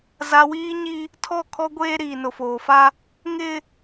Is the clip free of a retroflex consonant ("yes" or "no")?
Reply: yes